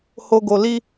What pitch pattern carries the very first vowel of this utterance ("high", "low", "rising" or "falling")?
low